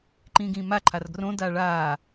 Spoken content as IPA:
ǃĩːɡĩːma ǃʰarɡrõ daːɭaː

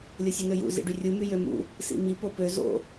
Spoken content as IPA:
lʲosʲɯnøjṵ zḭɖyrʲu myjømṵ | sḭmi popø zo̰

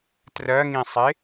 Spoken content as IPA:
trɜŋĩsˤe

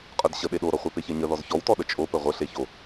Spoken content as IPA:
qʼə˞dɕə ɗeɗoɾɔχʷə˞ peçeɲəðɔz çɔwtɔ ɗət͡ʃʼo pəʁʷə ɬeço

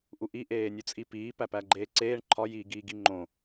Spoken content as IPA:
ʔuʔi ʔeːnʲut͡sʼipiː pæpæɡ͡ǃeːǀeːɳ ǃʰɒ jiːɡiːɡiŋ͡ǃõ

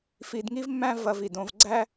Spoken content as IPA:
fi˧dŋi˥vmːæ̃˥ vɐ˧vi˩dõ˧v ɡ͡ǀæ˥

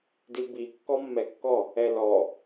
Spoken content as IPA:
dibi kːɔmːɛkːɔ | ɛlɔ

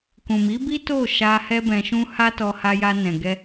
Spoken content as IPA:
kũ˨mi˨˦bi˦ to˦˨ ʃa˧ hɛ˦bɛ̃˧ʃũ˦ ha˦tɔ˧ ha˧ja˧nɛ̃˨ɡɛ˧

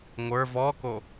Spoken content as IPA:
ŋʷə˞ vɔko

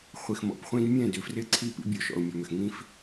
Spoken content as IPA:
χʷi˨xmɔ̰˨pχʷĩ˦d mʲɛ̃˦˨dʏ˨ frɪ˦ǀʰi˦˨pḭ˦ bʲo˨ʃɔ̰˨ʊ̯mʲɔ˨mʏ˨x ŋĩ˦f

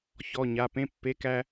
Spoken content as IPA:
çɔ˩˧˩ɲa˩˧˩ pẽ˧˥˧pːe˧˥˧kæ˥

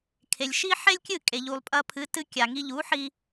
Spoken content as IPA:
kʰe˩lʲ ʃi˥ħe˥lʲkʲɨ˥˩ kʼe˩ ʎu˩lˠpʼɐ˧pʰɨ˩˥ tɨ˧kʲa˩ ŋi˧ʎu˩˥ħi˧

